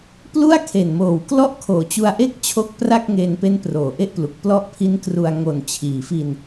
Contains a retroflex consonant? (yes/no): no